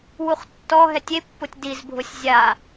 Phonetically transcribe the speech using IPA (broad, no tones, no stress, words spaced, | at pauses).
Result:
wuχtːɔɦɛtʲ epːʊtʲ dizbʱʊsʲ zʲa